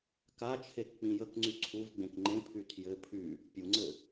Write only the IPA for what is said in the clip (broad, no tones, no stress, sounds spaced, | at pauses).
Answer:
k a t͡ʃʰ e k k͡p ĩ j ə k ŋ͡ǀ y ǀʰ u v ɡ͡b ẽ k ŋ͡ǃ ẽ pʰ y tʰ j ɘ pʰ y | pʲ u ŋ͡ǀ ɘ